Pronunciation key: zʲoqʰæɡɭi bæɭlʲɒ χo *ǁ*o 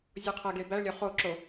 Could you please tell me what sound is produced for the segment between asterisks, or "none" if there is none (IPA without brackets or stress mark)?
ǁ